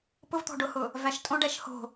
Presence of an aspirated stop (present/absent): absent